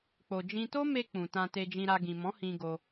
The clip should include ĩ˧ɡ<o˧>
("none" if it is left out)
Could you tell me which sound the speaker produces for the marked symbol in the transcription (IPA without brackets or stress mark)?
o˧